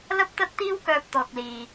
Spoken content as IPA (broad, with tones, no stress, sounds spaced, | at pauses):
l ɐ˥ p̚ t̪ ɐ˥ t̚ t̪ iː˥ w k œː˧ p̚ t̪ ɔː˨ k̚ l iː˨